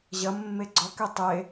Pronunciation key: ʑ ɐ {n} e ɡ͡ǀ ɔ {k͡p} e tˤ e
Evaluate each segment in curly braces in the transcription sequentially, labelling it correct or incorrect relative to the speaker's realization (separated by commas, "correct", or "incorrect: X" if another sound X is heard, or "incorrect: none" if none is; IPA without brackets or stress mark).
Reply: incorrect: mː, incorrect: k